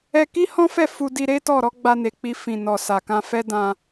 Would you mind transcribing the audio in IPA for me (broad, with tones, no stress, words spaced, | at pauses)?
ɛ˧ki˦hɔ̃˦fɛ˦˨ fu˧di˧ ɾe˦tɔ˦˨ɾɔ˨˦ ɡ͡ba˧ne˨k͡pi˧ fĩ˨nɔ˨ sa˨kã˧ fɛ˦dã˧